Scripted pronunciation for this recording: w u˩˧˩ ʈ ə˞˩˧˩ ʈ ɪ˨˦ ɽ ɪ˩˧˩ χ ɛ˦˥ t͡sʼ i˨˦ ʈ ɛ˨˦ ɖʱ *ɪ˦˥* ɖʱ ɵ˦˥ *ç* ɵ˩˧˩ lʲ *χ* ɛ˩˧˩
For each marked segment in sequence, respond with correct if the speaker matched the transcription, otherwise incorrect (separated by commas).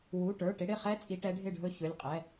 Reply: incorrect, correct, incorrect